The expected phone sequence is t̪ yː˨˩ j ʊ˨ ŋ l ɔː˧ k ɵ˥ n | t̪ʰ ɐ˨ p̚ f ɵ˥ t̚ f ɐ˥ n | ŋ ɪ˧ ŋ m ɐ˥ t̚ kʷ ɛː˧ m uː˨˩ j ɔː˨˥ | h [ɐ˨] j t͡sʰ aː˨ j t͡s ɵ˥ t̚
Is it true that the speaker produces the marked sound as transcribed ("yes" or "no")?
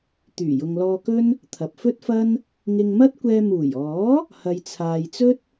yes